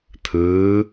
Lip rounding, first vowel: unrounded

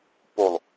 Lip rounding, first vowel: rounded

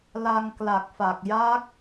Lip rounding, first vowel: unrounded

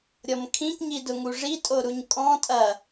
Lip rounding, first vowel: rounded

